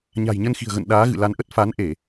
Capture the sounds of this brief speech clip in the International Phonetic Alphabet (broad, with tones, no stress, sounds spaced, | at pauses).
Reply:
ɲ a̤˨˩ j ɲ ə˧ n x i̤˨˩ ə̯ ɣ ə̰˧˨ n ɗ aː˨˦ ɣ ɨ̰˧˨ l a˨˦ n ʔ ə˦˥ t̚ f a˨˦ n ʔ e˧˩˨